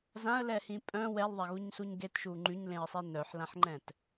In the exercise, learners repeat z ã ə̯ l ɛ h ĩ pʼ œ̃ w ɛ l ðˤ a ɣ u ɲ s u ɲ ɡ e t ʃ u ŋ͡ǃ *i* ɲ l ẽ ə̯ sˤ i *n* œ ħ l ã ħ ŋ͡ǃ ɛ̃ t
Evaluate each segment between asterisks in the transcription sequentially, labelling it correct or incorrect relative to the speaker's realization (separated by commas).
incorrect, correct